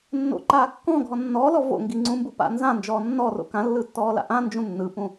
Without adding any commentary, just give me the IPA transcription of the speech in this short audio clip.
nː o̰ ǃ aː kː ɔ̃ ɡʱ ɔ nː ɔː l ɔ v o̰ ŋ ɡ i ŋ͡ǀ ũ m b u p a̰ n z ã n d͡ʒ ɔː nː ɔ r o̰ k ã lː ɯ tː ɔː l a̰ ʔ ã n d͡ʒ ũ nː ɯ p ũ

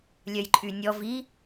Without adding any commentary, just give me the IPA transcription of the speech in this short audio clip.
lʲ œ j ǃʼ y nʲ ɔ v i

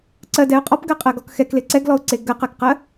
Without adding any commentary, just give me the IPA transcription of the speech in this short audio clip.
ǀ ɜ d ɛ ʊ̯ qʼ ɔ p ɡ ɜ qʼ ɜ ɡ ɔ k x ɛ k l e ǀ ɛ ɡ l ɔ ʊ̯ ǀ e ɡ ɜ q ɜ k q ɜ

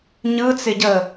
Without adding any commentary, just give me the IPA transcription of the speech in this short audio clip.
ɲ ɯ t͡s ɪ ɟ əː

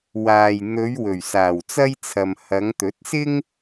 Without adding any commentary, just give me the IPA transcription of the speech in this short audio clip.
w aː˨ j n̪ ɵ˨˧ ɥ w ɵ˨˩ ɥ s aː˨˩ w t͡s ɐ˥ j t͡sʰ ɐ˨ m h ɐ˨˧ ŋ t̪ ɵ˨˥ t̚ s ɪ˥ ŋ

